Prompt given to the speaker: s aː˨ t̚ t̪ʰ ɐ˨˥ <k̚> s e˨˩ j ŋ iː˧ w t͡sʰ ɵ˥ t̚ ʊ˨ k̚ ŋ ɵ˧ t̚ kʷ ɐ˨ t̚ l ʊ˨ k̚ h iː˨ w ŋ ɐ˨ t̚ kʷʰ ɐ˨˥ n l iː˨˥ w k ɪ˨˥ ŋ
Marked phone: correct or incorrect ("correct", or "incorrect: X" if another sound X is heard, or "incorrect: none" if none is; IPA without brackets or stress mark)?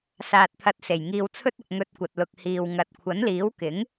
incorrect: t̚